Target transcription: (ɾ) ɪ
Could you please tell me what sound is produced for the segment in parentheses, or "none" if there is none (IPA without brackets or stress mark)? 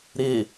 ɾ